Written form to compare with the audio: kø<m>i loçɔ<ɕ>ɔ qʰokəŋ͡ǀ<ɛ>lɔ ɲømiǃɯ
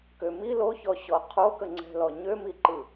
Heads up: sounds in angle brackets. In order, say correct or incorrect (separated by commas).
correct, correct, incorrect